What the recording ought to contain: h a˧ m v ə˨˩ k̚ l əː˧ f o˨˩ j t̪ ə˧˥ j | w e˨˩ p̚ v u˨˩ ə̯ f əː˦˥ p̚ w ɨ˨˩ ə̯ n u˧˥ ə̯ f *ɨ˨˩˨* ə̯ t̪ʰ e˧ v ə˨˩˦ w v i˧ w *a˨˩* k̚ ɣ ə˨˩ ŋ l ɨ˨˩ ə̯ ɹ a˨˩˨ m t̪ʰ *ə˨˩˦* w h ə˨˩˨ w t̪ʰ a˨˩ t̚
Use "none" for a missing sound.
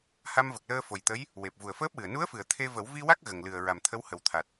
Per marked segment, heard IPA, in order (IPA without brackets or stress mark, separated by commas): ɨ˨˩˨, a˦˥, ə˧˥